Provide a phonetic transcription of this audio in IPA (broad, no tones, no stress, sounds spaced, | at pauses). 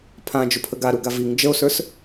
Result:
pʰ ã d͡ʒ ʊ pʰ ə ɡ a ɾ u ɡ a v i ŋ d͡ʒ ə o̯ s ə˞ s